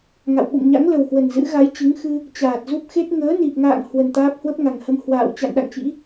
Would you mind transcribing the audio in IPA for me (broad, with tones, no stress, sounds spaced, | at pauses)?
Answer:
ŋ a̰˧˨ w ɓ ṵ˧˨ m ɲ a̰˧˥ ŋ l ə˨˩ w h w ə˨˩ n z ɨ̰˧˥ ɣ a˨˦ j t͡ɕ ɨ˨˦ ŋ x ɨ˧ | t͡ɕ aː˨˩ t̚ z u˦˥ p̚ x e˦˥ t̚ ŋ əː˨˦ n i˨˩ p̚ ŋ a̰ː˧˨ ŋ h w ə˨˩ n t̪ aː˦˥ p̚ h w ə˦˥ p̚ ŋ a˨˩ ŋ h ə˧ m h w a̰ː˧˨ w t͡ɕ a̰˧˨ n ɗ a̰˧˨ ŋ t͡ɕ ḭ˧˥